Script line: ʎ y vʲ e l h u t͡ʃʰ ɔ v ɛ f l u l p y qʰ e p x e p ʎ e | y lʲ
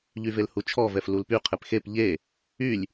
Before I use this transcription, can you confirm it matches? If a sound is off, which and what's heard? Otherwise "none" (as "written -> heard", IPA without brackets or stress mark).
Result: vʲ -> v